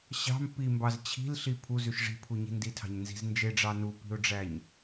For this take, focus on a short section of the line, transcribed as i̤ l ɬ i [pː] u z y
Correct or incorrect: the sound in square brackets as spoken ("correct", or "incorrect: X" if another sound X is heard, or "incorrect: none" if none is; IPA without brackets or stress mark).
incorrect: pʰ